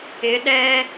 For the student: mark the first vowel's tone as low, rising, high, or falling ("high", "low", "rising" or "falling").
rising